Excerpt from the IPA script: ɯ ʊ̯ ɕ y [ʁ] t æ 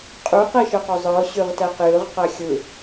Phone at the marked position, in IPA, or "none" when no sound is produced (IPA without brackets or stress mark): ʁ